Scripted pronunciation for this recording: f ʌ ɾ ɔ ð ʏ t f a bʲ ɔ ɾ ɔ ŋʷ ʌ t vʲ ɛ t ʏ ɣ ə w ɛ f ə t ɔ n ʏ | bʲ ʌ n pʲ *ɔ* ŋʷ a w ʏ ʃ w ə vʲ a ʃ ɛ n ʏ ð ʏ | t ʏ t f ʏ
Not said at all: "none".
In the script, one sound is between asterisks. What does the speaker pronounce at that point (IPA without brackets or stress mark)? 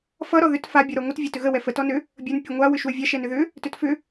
ʌ